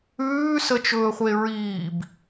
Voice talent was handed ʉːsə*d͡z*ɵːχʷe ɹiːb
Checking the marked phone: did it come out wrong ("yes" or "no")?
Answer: yes